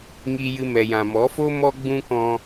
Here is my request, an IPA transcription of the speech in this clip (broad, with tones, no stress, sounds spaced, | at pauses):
ŋ i˨ j ɨ˨ m ɛ˨ j ã˨ m ɔ˨˦ f o˦ m ɔ˦ ɡ͡b ũ˦ k ɔ̃˧